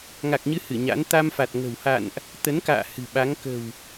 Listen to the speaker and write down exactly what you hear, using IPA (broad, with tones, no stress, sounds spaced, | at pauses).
ŋ a˨˩ k̚ ɲ ɨ˨˦ h ɨ˧˩ ɲ a̰˧˥ n t̪ a˧ m f a˨˩ t̚ ŋ ə̤˨˩ w h a̰˧˨ n ʔ | t̪ ə˨˦ n k a̰ː˧˨ h ɨ̤˨˩ ɓ a˨˦ ŋ k ə̤˨˩ w